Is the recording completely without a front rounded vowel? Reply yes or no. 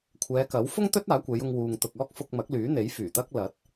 no